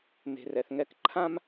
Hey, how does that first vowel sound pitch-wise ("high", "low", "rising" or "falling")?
low